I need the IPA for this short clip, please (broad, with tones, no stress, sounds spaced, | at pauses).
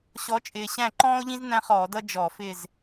ɕ ɔ˨˦ t͡ʃʼ ɪː˨˩ ɕ æ̃˦˨ ǃ ɔ̃ː˥ o̯ ʎ ĩ˥ z n æ̃˥ χ ɔː˧˩˧ d ʌ˥ d͡ʒ ɔ˧˩˧ f ɪ˦˨ z